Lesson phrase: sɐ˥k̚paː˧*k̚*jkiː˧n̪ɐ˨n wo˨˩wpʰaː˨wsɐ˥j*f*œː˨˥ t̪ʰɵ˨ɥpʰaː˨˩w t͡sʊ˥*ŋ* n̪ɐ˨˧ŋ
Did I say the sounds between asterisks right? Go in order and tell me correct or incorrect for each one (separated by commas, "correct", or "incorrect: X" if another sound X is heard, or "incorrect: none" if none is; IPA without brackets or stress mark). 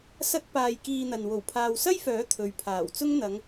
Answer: incorrect: none, correct, correct